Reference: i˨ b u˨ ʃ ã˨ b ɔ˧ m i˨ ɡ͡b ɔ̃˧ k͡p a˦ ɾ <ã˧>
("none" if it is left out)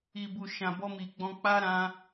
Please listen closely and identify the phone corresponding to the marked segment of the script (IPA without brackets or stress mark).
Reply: ã˧